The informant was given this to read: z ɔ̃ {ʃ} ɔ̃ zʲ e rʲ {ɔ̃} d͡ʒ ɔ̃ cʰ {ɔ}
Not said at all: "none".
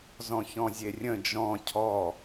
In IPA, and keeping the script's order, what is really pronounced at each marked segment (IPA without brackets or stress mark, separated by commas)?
ç, ə̃, ɔ